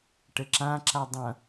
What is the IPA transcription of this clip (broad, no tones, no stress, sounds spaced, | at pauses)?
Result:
ʈ ɘ ǁ ã ǁ a dˤ ɐ̃